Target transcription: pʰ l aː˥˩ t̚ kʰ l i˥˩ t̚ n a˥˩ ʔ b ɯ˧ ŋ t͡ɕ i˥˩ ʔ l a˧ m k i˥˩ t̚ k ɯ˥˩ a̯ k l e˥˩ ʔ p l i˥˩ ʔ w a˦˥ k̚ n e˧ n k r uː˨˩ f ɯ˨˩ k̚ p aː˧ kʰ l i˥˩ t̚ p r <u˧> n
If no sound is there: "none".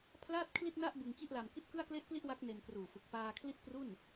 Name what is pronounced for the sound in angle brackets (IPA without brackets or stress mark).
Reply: u˥˩